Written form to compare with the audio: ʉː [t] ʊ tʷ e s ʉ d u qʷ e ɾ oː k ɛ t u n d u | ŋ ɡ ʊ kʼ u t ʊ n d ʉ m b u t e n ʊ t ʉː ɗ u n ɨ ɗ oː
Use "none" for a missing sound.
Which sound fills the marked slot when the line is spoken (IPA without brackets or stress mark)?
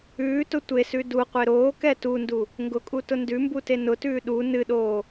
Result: t